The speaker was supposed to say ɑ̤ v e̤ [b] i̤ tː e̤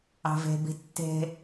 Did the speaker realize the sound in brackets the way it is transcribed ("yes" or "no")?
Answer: yes